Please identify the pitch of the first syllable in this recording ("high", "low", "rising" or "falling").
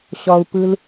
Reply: low